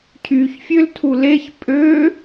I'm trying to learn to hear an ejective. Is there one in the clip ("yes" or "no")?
yes